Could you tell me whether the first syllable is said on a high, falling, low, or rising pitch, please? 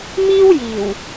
high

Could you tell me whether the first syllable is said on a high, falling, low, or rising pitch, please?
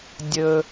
high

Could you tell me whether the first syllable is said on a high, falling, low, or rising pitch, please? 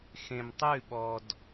low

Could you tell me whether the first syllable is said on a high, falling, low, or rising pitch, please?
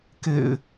low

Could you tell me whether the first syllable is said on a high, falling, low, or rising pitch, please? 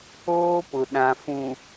high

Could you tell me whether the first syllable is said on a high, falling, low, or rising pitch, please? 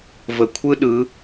low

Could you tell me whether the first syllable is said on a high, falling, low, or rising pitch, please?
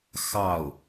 falling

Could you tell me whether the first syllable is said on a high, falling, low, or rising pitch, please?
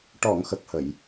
low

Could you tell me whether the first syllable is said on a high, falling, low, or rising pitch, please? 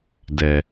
low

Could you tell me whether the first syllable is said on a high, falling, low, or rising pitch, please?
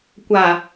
low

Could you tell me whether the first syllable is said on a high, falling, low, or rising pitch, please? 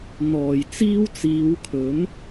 low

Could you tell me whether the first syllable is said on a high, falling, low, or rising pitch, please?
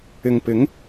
low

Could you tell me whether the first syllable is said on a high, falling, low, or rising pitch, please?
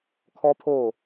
high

